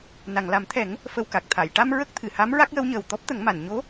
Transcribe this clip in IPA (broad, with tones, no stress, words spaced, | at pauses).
na˨˩˨ŋla˨˩˦mt̪ʰɛ˨˩˦ŋ | fə˧wka˨˩k̚ t̪ʰa˨˩˨jʈa˧m ɹə˦˥k̚t̪ʰɨ˨˩˨ ha˧˥m ɹa˦˥k̚jə˧˥wɲəː˨˩w t̪ɔ˦˥p̚t̪ə˨˩˦ŋma˨˩˨n ɲo˧˥